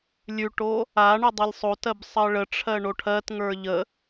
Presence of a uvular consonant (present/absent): absent